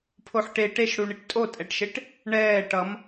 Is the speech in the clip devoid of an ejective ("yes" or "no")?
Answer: no